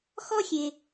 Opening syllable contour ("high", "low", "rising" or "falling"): high